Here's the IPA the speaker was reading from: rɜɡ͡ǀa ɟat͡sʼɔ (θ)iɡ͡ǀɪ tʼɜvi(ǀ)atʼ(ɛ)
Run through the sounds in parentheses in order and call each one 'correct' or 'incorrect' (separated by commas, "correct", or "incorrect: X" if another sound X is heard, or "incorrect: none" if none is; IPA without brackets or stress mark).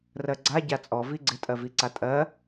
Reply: incorrect: v, correct, incorrect: ɜ